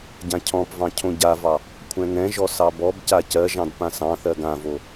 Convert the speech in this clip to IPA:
ɟ ã cʰ ɔ̃ p v ɑ̃ cʰ õ ɟ a v ɑ | kʷʰ ɛ̃ ŋ ɛ̃ ʒ ɔ s ɑ b ɔ b c a c ɜ ʒ ɑ̃ d p ã s ɑ̃ θ ɜ ɡ ã v o

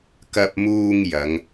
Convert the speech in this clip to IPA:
k ɐ˧ p̚ m uː˧ ŋ j ɐ˨˧ ŋ

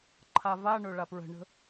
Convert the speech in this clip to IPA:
ǃʰ a v a ɳ ɵ ɭ a p ɹ ə̤ ɳ ə̤

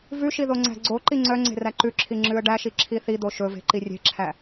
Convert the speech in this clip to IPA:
v ʉ ʃ i ð o ŋ͡ǀ æ̤ ɡ͡ǀ o ǃ i ŋ͡ǀ œ ŋ͡ǀ e̤ r æ ǃ ʉ ǁʰ i ŋ͡ǁ ʉ ə̯ ɖ æ ʃ i ǁʰ i θ i d̪ o ʃ ɵ v e̤ ǃ i rʲ e̤ ǁʰ æ

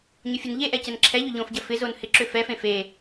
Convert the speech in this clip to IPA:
ɲ ʊ fʲ ʊ n ʎ e ʔ ɛ c ɛ n ǁʰ ɛ ʎ ʏ ʎ õ f ɟ ɐ f ɪ z o n h ɪ ǁ ʏ f ɛ f ẽ f e

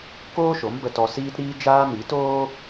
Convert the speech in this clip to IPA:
k oː˦ ʃ o˨˦ m b ə˧ t ɔ˧ s iː˦ t ɾ iː˦ d͡ʒ aː˦ m i˨˦ t oː˦

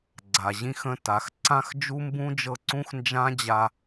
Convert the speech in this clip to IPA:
ɡ͡ǀ a˨ ʑ ĩ˦ x ə̃˦ t a˨˦ x ǀ ã˦ x d͡ʒ u˦ m b ũ˦ d͡ʒ ɤ˧ ǀ ũ˦ x n d͡ʒ ã˦ d͡ʑ a˧

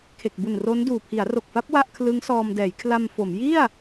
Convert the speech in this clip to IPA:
kʰ e˨˩ k̚ b u˨˩ n r o˦˥ n d uː˨˩ pʰ i˩˦ a̯ r o˨˩ k̚ f a˦˥ p̚ w a˥˩ ʔ kʰ l ɯ˦˥ ŋ s ɔː˧ m d ɛː˩˦ j kʰ l a˧ m f o˩˦ m j i˥˩ a̯

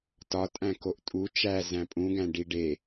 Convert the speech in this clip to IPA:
t ɒ tʼ æ̃ k o ʔ tʼ u t͡ʃ æ z æ̃ pʼ ũ ɡ æ̃ ɖ i ɖ e

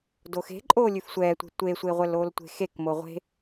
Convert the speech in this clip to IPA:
d o x e̤ ǃʼ oː lʲ ʉ f sʷ ɛː tʷ e̤ tʷ e sʷ e ʁʷ ɛ l oː l tʷ e̤ x e k m o ʁʷ e̤

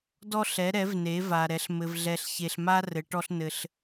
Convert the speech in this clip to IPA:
d ɔ˦ ɬ ɛ˩˥ ɾ ɛ˩˥ v n e˩˥ v a˨ ɾ ɛ˩˥ ɬ m ɘ˨ v ɮ ɛ˨ ɬ ç e˨ ɬ m a˦ r ɘ˩˥ ʈ ɔ˦ ɬ n ɘ˨ ɬ

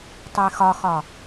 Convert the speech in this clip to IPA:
tˤ e x ɒ x ɒ

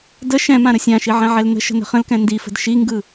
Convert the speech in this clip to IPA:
d ə ʃ ɛ̃ m ã ɾ ə sʲ ã ʃ i ʕ ɛ̃ ʕ ɛ l n ə̤ ʃ ə̤ n ə̤ χ ə̃ l k ɛ̃ n d i f ə̤ d ʃ i ŋ ɡ ɯ

